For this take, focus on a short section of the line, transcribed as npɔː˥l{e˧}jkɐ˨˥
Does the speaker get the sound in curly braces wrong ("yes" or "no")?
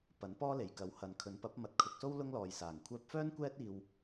yes